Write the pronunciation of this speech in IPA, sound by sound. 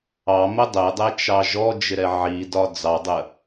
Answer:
ɑ m ə dˤ ɛ dˤ ɛ t͡ʃ ɑ ʒ ɔ d͡ʒ ɪ ɾ ɛ ʕ i d ɒ d͡z ɑ dˤ ə

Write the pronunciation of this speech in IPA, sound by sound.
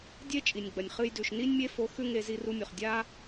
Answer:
dʲ e˦ t͡ʃʼ i˨ nʲ ɡ͡b ɐ˨ nʲ χ ɨ˦ j d ʉ˨ ʃ n i˦ nʲ mʲ e˦ f o˧ x ʉ˦ ŋ e˧ z i˧ r u˧ mʲ o˨ χ dʲ a˦

